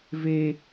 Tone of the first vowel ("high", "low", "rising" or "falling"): high